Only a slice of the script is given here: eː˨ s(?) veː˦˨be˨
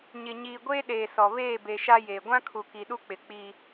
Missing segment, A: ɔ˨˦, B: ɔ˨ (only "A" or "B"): B